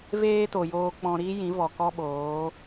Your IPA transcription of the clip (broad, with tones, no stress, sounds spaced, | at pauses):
v eː˦ t o˨ j oː˧ k͡p ɔ̃˧ ɾ iː˦ j ĩ˨˦ v ɔ˨ k ɔ˦ ɓ oː˨˦